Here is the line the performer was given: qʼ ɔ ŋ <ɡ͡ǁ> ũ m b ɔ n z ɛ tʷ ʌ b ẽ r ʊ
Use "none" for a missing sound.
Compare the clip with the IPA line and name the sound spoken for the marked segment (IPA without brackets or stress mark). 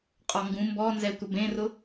ɡ